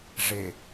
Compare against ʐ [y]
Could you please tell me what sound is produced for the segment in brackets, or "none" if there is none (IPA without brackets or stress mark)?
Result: e